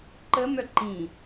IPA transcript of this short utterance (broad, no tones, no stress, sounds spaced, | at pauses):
ǃ ə m œ ǃ ĩ